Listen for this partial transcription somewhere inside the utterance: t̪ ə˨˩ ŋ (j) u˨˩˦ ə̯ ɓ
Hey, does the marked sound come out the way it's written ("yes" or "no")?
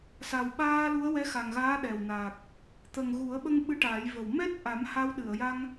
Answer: no